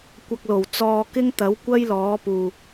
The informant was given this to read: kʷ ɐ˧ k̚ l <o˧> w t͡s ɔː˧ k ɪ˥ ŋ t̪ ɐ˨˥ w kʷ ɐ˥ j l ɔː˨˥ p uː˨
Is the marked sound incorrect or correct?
incorrect